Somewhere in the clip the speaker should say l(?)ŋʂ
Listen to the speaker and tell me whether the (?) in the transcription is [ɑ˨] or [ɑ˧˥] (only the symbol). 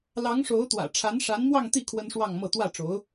ɑ˧˥